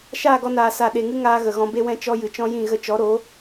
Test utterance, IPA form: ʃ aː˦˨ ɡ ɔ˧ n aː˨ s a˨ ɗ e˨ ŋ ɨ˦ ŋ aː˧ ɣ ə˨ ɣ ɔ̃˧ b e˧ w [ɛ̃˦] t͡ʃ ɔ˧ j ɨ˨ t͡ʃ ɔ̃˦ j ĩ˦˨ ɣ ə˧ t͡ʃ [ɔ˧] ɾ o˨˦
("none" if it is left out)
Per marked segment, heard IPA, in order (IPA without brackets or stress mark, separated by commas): ɛ̃˧, ɔ˨˦